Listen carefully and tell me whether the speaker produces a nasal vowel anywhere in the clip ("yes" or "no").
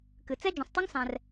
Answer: yes